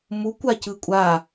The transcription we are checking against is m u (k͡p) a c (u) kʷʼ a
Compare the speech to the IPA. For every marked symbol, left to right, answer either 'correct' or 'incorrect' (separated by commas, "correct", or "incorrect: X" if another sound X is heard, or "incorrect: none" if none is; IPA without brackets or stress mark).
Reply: incorrect: kʷ, incorrect: ɯ